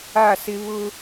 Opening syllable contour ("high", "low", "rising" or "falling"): falling